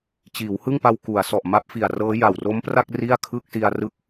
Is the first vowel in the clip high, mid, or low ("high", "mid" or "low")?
high